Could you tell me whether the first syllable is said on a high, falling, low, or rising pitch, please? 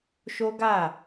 high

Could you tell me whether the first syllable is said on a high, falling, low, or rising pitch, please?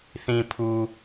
low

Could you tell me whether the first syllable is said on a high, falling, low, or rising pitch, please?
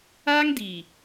high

